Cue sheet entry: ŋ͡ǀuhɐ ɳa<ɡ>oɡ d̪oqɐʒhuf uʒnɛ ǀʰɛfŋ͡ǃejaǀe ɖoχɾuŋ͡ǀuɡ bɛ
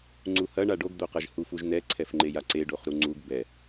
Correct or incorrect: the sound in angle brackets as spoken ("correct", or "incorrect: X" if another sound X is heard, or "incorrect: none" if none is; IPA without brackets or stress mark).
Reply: incorrect: ɖ